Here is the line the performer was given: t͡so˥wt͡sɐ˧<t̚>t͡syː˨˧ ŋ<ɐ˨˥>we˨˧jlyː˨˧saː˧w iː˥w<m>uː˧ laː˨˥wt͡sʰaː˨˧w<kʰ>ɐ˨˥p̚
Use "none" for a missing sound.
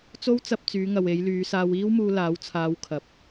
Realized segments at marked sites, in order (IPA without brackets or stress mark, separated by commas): p̚, ɐ˨, m, kʰ